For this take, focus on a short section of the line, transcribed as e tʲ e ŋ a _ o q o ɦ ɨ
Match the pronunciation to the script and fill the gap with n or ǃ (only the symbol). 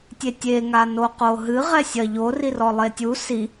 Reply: n